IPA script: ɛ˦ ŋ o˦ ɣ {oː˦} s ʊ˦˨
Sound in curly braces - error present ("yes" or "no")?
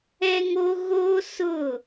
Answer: no